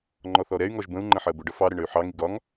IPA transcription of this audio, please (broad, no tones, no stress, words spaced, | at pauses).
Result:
ŋ͡ǃɔθɔɾɛy̯ŋɔʒ bə̃u̯ŋ͡ǃə̃ ħɜbʊɖʌ fɑɾə ɳəy̯ħɑŋi ɡɒŋ